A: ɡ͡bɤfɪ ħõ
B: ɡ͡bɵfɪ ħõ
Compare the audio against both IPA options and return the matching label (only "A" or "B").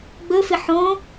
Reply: B